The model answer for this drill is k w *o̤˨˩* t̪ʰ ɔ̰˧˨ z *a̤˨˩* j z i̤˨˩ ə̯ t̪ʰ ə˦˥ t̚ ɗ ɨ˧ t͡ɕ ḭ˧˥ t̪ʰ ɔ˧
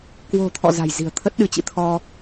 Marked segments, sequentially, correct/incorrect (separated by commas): correct, correct